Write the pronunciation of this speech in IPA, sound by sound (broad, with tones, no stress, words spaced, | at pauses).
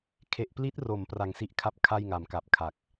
kʰe˨˩ʔpli˦˥t̚ro˩˦m pra˨˩ŋsi˦˥ʔkʰa˥˩p̚ kʰa˥˩jŋa˩˦mka˨˩p̚ kʰa˨˩k̚